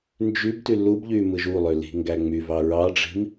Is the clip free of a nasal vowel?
yes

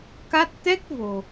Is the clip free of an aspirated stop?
yes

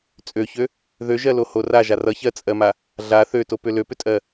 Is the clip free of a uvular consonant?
yes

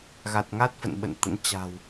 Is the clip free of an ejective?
yes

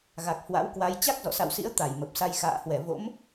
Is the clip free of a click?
yes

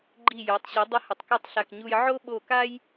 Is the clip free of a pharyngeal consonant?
no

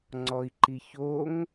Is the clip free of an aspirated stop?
yes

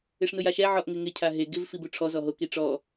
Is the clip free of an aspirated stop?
no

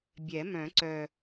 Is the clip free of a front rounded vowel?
no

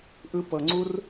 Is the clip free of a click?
no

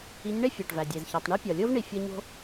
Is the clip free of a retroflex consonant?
no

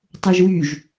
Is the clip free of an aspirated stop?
yes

